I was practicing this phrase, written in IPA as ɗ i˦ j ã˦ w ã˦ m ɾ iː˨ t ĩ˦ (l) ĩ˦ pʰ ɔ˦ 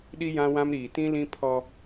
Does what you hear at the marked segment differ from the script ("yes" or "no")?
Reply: no